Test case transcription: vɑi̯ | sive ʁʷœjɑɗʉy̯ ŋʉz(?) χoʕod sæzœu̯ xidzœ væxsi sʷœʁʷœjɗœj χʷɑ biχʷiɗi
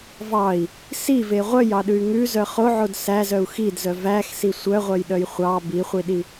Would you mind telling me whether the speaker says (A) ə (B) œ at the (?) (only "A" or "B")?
B